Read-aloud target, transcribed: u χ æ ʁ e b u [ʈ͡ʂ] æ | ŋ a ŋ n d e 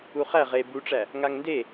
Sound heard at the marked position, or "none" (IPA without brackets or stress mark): ʈ͡ʂ